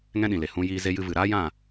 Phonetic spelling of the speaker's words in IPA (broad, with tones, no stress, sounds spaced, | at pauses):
ŋ ɛ̃˦ ɗ ĩ˨ l e˨ h ũ˧ j iː˧ z e˧ j ɨ˧ v ɨ˨ ɾ aː˦ j ã˦˨